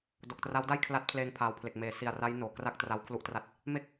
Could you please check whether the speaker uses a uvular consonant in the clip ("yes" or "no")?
no